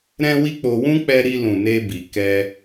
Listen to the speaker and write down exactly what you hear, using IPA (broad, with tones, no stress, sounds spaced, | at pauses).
ɾ ɛ̃˦ w i˦ k͡p o˧ w ũ˦ k͡p ɛ˧ ɾ i˧ l ũ˨ n e˧ b i˨ k ɛ˧